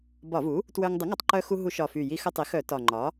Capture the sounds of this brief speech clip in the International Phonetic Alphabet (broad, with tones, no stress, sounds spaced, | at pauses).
b ɒ˧˩˧ v u˩˥ | t w œ˧ ŋ dˤ ə˩˥ ŋ ɒ˧ tˤ ǃ œ˧ x u˧ ɦ u˧˩˧ ʃ ɒ˨˩ f y˨˩ j i˧ x ə˧ tˤ i˩˥ x œ˧˩˧ t ɒ˨˩ ŋ͡ǃ ɒ˩˥